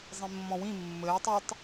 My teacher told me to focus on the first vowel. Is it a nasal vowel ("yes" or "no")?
yes